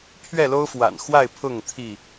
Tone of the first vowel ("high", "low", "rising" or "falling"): falling